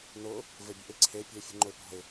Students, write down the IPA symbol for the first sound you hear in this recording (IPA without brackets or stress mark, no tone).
n